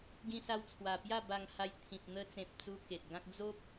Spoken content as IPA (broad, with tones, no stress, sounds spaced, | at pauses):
ɡ ĩ˧ s a˧ w t͡sʰ w a˨˩ p j a˥˧ b a˨˩ ŋ h a˧ j t̪ʰ ĩ˨ p̚ n̪ ə˧ t͡s ẽ˨ p̚ t͡s u˦ k e˨ t̚ ɡ ã˦ k̚ d͡z o˦ p̚